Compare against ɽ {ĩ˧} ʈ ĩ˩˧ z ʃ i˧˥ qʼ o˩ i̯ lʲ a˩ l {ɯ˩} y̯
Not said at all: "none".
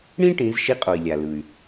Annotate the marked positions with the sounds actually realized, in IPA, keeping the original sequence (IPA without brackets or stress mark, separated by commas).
ĩ˥, ɯ˩